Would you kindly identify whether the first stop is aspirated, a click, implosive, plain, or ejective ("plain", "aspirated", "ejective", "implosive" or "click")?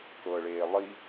plain